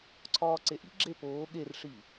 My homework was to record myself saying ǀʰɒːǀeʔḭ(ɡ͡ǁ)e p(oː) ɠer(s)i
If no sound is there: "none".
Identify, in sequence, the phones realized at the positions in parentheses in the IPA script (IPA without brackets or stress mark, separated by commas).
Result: ɡ͡ǁ, oː, ʂ